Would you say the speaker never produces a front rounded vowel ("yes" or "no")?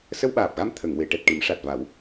yes